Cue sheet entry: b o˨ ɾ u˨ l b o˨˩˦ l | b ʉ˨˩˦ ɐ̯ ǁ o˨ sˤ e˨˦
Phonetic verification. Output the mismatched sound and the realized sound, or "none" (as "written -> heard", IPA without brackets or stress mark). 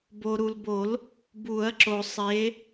ʉ˨˩˦ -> u˨˩˦